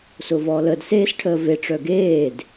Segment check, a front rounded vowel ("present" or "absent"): present